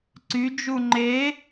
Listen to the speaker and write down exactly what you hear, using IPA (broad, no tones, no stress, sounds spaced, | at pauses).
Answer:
ǀ y d͡ʒ u ŋ͡ǃ e